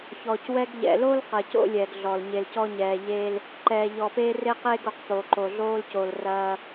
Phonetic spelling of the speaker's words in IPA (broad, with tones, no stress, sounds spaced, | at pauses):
ç ɔː˨ c w ɛ˦ ɡ ʎ ɛ̰˨ l o˦ l q ɐ˨ c o̰˦ lʲ ɛː˨ ɡ ɮ ɔ˨ l ɲ e˨ l c ɔ˦ ɲ ɛː˨ ʎ e˦ l | ǃ ɛː˨ ʎ ɔː˨ p eː˦ r e˦ q e˦ ɡ o˨ q p o˨ ǃ o˨ ɮ oː˦ l c o˨ l r ɐː˦